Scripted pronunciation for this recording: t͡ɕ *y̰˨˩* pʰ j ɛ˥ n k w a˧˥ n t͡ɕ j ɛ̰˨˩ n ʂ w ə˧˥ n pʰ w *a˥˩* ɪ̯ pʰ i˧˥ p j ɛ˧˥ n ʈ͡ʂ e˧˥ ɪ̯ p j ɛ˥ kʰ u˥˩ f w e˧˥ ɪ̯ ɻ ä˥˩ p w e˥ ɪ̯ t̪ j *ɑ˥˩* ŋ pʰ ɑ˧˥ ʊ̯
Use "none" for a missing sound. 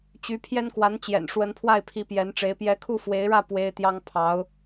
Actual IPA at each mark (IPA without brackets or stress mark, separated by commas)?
y˧˥, a˥˩, ɑ˥